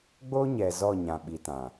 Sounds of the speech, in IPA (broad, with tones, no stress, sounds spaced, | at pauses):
ɡ͡b o˦ ɲ ɛ˨ z ɔ˦˨ ɲ ã˨ ɓ i˨ t ã˨